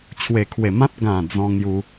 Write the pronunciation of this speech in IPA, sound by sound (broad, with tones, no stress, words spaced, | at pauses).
t͡ɕʰwe˨˩kʰwe˨˩mã˦t̚ ɡã˨˩ d͡zɔ̃˧ŋju˧